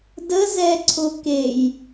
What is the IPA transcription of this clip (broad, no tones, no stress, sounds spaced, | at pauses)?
d ə z ɛ ǀʰ ʊ k e j